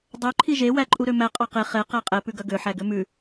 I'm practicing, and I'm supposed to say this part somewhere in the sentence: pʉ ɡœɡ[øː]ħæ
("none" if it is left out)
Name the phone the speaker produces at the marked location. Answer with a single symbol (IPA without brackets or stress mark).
ø